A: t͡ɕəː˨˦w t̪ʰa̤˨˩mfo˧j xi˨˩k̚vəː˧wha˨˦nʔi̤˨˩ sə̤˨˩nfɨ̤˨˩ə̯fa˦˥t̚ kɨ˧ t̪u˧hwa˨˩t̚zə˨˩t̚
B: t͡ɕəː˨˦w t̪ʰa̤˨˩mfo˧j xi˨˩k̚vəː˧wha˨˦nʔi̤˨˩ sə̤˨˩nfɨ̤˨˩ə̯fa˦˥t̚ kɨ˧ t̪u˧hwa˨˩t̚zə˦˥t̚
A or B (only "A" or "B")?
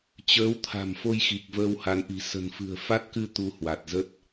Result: B